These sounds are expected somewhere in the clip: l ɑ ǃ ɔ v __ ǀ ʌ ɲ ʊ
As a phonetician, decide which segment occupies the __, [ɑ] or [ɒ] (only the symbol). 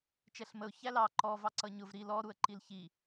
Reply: ɑ